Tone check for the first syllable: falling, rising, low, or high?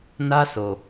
high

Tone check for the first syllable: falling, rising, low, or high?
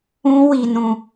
high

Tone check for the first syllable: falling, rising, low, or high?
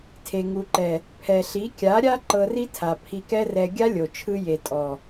low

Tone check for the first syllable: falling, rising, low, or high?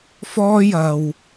high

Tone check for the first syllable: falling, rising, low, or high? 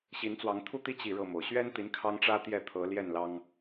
rising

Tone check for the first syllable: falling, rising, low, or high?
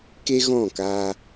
high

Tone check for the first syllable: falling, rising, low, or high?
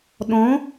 rising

